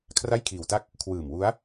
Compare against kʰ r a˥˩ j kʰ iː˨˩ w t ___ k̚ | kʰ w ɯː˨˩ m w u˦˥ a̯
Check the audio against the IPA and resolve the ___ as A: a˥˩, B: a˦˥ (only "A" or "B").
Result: A